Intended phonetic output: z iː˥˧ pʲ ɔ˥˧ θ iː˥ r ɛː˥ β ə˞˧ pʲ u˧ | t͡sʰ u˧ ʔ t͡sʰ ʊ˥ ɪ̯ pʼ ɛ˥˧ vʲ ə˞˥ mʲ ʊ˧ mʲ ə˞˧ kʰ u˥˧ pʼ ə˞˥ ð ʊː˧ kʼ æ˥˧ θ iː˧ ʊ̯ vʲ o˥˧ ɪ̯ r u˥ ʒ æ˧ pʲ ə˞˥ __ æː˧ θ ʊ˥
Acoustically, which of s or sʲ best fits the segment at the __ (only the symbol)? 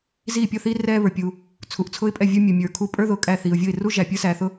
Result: s